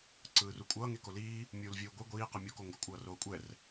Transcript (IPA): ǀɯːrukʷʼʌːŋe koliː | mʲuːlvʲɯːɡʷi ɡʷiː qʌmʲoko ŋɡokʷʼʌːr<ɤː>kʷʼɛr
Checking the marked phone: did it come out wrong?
yes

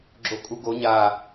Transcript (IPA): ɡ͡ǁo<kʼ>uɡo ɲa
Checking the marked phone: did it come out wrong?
no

